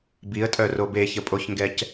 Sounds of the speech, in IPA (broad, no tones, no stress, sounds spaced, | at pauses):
b i ə̯ tʼ œ r o b e ç ə pʼ o ç ŋ ɡ ɛ c